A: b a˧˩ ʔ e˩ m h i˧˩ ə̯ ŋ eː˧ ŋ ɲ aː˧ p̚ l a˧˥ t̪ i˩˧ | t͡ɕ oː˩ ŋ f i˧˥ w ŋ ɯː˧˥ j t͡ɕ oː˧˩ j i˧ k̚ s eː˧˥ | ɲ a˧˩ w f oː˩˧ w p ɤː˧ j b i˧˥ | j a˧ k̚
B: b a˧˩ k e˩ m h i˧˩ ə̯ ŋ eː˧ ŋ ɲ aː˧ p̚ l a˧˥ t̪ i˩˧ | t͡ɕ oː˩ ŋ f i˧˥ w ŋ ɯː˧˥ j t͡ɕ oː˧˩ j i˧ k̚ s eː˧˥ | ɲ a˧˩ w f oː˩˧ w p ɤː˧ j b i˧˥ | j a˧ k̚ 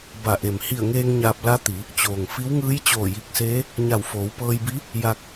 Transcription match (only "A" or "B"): A